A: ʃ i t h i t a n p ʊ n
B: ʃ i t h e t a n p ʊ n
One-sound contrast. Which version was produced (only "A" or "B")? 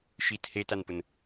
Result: B